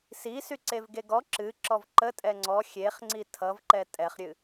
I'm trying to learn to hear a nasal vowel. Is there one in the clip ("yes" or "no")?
no